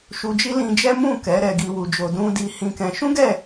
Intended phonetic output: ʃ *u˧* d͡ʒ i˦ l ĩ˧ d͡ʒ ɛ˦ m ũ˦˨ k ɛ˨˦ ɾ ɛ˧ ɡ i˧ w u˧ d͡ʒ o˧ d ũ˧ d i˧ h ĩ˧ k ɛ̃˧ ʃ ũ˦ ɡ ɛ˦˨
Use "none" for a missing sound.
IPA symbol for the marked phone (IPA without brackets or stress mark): u˧